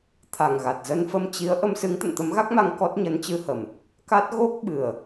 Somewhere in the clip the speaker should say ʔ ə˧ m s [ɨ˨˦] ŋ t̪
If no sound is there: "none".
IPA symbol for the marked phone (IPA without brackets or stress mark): ɨ˨˦